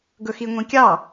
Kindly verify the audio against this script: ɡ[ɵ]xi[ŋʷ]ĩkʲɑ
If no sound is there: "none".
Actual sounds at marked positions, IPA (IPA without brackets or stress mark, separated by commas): ɵ, ŋʷ